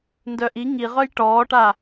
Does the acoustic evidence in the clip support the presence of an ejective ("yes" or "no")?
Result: no